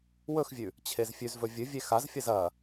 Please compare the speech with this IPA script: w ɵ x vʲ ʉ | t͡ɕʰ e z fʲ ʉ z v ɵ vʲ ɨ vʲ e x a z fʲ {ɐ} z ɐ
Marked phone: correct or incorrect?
correct